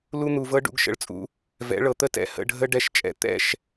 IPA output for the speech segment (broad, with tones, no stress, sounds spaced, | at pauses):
l u˦ n̪ u˨ v ɤ˦ ɖ ṵ˨˦ ɡ ʃ ə̰˨ ɭ t͡sʼ ṵ˦ | v ɛ̰˨˦ ɭ ɤ˨ t̪ ə˦˨ t ɛ̰˨ h ə̰˦˨ ɖʱ ə˦ ɖ ɛ˦˨ ʃ t͡ʃʼ ɛ̰˦ t̪ ɛ̰˦˨ ʃ